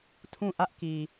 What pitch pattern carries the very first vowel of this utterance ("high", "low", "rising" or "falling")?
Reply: falling